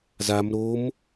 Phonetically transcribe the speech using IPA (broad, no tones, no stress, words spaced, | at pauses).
zam ɾom